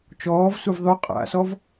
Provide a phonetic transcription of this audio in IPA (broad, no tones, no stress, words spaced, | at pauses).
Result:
t͡ʃɔːvsuv ðˤʉ qʼa̰sɔv